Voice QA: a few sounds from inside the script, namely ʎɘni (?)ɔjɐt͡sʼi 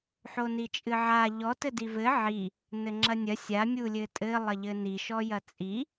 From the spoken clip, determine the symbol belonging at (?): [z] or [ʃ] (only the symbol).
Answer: ʃ